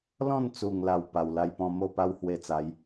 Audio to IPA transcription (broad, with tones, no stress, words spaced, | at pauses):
lɔ̃˥˧nt͡su˨˩ŋla˨˩w pa˨˩wla˧jpɔ̃˧ mo˥˧pa˦whwe˧t͡sa˨˦j